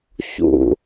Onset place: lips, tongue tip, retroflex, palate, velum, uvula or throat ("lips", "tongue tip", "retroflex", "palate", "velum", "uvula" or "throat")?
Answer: palate